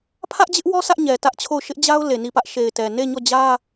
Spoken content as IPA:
pʰ ä˦ ʔ d͡ʑ ɪ˦ ʔ w ɔ˦ sʰ ä˦ ʔ ɲ ɛ˨ t ä˦ ʔ t͡ɕʰ o˦˨ ʊ̯ ʃ ɪ˦ ʔ d͡ʑ a˦ ʊ̯ l e˨ n i˦˨ p ä˦ ʔ ʃ e˨ ɪ̯ t ɛ˨ n e˦˨ ɲ ɔ˦˨ d͡ʑ ä˦

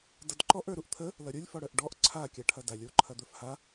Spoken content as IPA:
d ʌ d ǃ ɔ ʔ ə˞ ɾ u ʔ t̪ʰ ə | l ʌ ɾʲ o lʲ f ɔ ɽ œ ʔ ɖ ɔ ʔ ǀʰ a kʲ a ʈʰ ɐ d a lʲ o ǃʰ ɐ d̪ ə˞ f h a

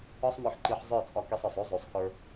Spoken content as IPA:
ɒ˦ sˤ m ə˞˧ ħ ǃ i˧ ħ zˤ ə˞˦˨ t͡sʼ ɒ˧ k e˧ sˤ ɒ˨ sˤ o˦ zˤ o˨ sˤ x ə˞˧

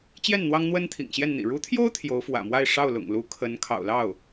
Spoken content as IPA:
t͡ɕ j ɛ˥˩ n n̪ w ɑ˥ ŋ n̪ w ə˥ n t̪ʰ ḭ˨˩ ŋ ɕ j ɛ˥˩ n n̪ ḭ˨˩ ɻ u˧˥ t̪ʰ j o˥ ʊ̯ t̪ʰ j o˧˥ ʊ̯ f w ä̰˨˩ m w a˥˧ ɪ̯ ʂ ɑ˥˩ ʊ̯ l ʊ̰˨˩ ŋ l u˧˥ kʰ ə˧˥ n kʰ ɑ̰˨˩ ʊ̯ l ɑ˥˩ ʊ̯

